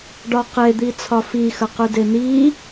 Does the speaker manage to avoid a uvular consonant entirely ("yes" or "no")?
no